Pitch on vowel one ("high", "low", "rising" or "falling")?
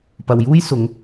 low